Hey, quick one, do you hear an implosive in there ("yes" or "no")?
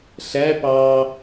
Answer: no